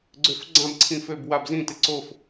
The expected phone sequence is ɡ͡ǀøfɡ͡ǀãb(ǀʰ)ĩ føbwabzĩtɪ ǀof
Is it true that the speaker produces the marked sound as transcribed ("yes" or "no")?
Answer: yes